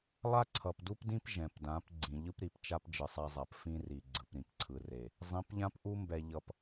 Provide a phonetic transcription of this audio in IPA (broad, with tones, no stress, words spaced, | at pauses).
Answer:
lˠa˦ǀʰʌ˨pdu˦pdĩ˦p ʒɛ̃˨pdã˨˦p ɡ͡ǀĩ˨ʎɯ˦pɾi˨pt͡ʃa˦p d͡ʒɯ˨sˤa˦zˤa˨p fĩ˦ri˨ ɡ͡ǀɯ˨pɾĩ˨pǀʰɯ˨re˨ | zˤĩ˨˦pʎã˦pʔu˦mbɛ˨ ʎʌ˨p